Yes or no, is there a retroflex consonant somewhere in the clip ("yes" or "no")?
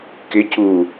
no